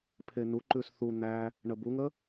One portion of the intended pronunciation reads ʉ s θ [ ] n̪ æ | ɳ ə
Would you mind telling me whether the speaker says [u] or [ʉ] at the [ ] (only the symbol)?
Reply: u